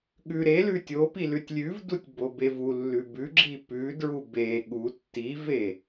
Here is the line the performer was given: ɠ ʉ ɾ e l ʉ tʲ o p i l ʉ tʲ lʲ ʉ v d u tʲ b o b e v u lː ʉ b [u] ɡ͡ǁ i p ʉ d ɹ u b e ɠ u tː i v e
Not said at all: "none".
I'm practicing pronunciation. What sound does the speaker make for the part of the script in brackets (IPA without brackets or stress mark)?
ʉ